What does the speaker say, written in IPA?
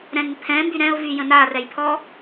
ɾ ɛ̃ n pʰ ɛ̃ m b y ɾ ɛ̃ ʊ̯ v y j ə̃ n a r ɛ j pʰ ɔ

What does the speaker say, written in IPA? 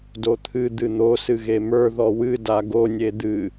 d o t̪ʰ ɨ d̪ ɨ n̪ o s ɨ ɣ e m ə˞ ð ɔ w ɨ d a ɡ o nʲ e d̪ ɨ

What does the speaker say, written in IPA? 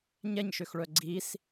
ɲ ɛ ɲ ʃ ø x ɭ œ ɡ͡ǀ i s

